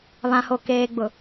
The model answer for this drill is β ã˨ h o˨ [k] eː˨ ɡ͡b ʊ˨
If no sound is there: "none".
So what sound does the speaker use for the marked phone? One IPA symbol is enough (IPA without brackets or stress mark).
k